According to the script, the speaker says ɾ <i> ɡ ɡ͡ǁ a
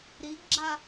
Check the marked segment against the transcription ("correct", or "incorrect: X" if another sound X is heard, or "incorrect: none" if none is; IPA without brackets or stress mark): correct